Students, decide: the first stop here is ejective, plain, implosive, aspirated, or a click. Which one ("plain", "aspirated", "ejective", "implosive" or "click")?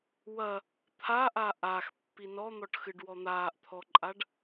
aspirated